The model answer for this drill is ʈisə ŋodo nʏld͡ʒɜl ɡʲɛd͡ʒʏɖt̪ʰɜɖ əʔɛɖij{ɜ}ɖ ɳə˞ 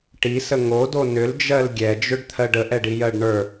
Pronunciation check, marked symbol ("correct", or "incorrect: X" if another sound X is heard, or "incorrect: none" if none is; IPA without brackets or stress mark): correct